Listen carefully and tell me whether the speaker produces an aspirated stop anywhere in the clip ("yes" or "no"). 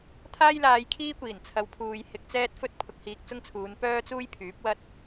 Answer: yes